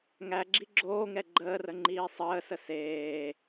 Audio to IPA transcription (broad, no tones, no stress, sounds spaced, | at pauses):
ŋ æ ɡ͡ǁ i ɡ͡ǁ oː ŋ ɛ ɡ͡ǃ əː r ə ŋ͡ǃ iː sˤ əː s ə s eː